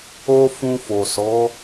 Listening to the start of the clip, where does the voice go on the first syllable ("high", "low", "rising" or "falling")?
high